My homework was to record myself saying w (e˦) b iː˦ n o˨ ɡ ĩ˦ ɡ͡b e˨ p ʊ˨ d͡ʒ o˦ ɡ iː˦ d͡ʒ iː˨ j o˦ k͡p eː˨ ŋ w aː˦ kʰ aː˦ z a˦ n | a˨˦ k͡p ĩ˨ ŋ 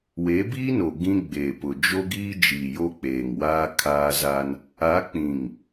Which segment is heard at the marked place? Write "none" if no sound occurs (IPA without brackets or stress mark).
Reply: e˨˦